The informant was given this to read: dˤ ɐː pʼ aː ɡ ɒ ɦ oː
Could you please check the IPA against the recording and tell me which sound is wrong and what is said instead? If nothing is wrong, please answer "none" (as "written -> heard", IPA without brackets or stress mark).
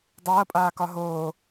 ɡ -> k